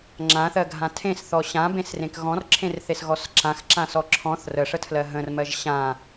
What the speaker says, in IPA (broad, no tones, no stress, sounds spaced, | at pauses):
ŋ͡ǁ ã θ ɜ ɡʱ ã tʰ ẽ s θ ɔ ɕ ã b ẽ s r ẽ k ɣ ɔ̃ r ǁʰ ẽ r θ e s ɣ ɔ s ǁ ã x ǁ ã s ɔ ǁʰ ɔ̃ θ r ə ʂ ə tʰ l ɜ ɦ ə̃ r m ɜ ʒ ɕ ã